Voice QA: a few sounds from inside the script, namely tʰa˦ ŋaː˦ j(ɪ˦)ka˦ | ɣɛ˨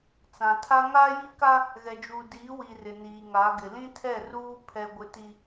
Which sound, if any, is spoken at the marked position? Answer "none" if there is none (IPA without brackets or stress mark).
i˦